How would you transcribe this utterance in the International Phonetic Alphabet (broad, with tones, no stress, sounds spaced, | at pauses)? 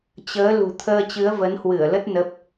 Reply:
t͡ɕ əː˨˦ l ṳ˨˩ t̪ʰ əː˧ t͡ɕ ɨ˨˦ ə̯ v ə˨˦ n h w ɨ˧˩ ə̯ l ə˦˥ t̚ n ə˦˥ p̚